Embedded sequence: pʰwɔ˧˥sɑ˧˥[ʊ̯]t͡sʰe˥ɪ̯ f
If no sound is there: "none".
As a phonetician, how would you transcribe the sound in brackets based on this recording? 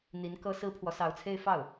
ʊ̯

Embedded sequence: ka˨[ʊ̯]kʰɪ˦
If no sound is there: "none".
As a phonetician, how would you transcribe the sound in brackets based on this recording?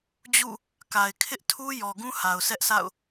ɪ̯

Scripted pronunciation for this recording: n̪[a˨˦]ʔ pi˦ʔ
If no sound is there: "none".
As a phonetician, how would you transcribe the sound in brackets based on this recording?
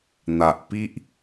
a˨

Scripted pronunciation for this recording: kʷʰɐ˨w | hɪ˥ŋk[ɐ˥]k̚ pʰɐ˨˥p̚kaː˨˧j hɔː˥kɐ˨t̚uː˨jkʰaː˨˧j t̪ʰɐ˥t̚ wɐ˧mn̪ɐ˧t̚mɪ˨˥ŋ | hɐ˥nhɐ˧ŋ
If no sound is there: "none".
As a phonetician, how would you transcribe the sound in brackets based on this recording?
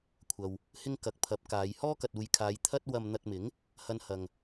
ɐ˨˥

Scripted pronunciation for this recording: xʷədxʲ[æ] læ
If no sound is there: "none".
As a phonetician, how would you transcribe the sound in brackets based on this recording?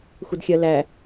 ɜ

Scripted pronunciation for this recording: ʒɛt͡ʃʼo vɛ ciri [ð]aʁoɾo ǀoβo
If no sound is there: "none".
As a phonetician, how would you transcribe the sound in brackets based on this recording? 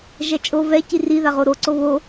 ð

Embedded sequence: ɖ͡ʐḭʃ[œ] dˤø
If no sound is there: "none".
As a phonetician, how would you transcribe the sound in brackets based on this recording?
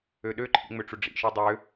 ø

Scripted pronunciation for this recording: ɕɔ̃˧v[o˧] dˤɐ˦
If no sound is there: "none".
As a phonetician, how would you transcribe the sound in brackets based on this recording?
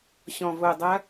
o˧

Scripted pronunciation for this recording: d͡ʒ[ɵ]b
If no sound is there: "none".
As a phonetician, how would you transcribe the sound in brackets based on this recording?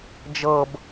ɤ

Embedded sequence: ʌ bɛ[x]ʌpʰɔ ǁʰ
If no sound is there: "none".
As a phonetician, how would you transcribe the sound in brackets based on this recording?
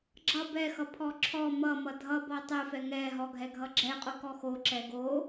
x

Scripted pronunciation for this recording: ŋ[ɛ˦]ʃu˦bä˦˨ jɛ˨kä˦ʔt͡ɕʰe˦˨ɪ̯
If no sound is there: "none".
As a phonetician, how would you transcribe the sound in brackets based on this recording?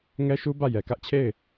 ɛ˦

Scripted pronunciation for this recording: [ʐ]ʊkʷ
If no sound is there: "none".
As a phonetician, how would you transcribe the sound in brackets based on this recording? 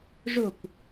ʐ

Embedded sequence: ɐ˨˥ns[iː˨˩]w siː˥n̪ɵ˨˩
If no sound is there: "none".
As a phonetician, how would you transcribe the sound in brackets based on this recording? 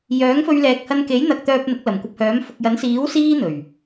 iː˨˥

